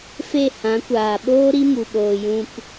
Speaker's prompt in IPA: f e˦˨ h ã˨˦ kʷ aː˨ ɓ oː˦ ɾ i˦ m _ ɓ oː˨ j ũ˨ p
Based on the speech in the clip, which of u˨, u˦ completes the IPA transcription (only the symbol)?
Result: u˨